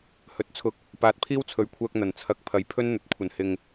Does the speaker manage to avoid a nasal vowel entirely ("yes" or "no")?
yes